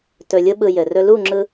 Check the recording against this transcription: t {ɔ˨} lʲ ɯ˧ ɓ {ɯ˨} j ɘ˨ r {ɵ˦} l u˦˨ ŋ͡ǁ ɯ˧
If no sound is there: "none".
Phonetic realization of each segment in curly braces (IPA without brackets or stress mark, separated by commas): ɵ˨, ɯ˨, ɵ˦